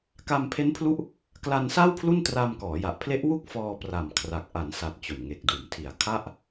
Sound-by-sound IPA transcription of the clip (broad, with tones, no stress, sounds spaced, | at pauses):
k a˧ m pʰ e˦˥ n pʰ l u˦˥ ʔ | k l a˧ n s a˥˩ w pʰ l u˥˩ n t r a˧ m k ɔː˩˦ j a˨˩ ʔ pʰ l e˦˥ ʔ w u˥˩ k̚ f ɔː˧ p r a˨˩ m kʰ r a˨˩ k̚ ʔ a˩˦ n s a˨˩ t̚ t͡ɕ o˨˩ n ŋ e˨˩ k̚ d uː˩˦ m tʰ i˨˩ a̯ kʰ a˥˩ ʔ